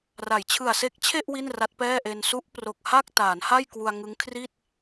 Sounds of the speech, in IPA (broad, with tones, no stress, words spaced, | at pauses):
ra˩˦jt͡ɕʰɯ˨˩a̯se˦˥k̚t͡ɕʰe˥˩ʔ wi˥˩nra˦˥t̚pɛː˥˩ʔe˧n su˦˥ʔpro˨˩k̚ ha˥˩k̚taː˩˦nha˥˩j kwu˧a̯ŋɯ˦˥ŋ kʰri˥˩t̚